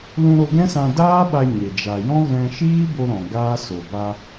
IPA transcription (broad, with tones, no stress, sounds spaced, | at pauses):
l ũ˧ ɾ o˧ ɡ ɛ̃˦ s ã˧ d aː˦ ɓ a˧ ɲ e˨ d͡ʒ a˨ j ɔ̃˦ ɣ ɛ̃˧ ʃ iː˦ b o˧ ɾ ɔ̃˨ ɡ aː˦ s o˨ b a˧